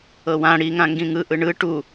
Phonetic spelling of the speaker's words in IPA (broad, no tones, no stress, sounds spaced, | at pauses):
ɤ w ã ɽ i ŋ ã ŋ ɡ ĩ ŋ ɯ ʔ ɯ ɳ ɯ ʈ u